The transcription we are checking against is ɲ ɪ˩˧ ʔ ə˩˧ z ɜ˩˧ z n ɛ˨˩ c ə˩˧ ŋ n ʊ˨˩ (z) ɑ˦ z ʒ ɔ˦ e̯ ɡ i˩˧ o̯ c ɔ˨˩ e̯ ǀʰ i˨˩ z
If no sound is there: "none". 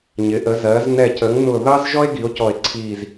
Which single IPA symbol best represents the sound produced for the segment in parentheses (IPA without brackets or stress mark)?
ð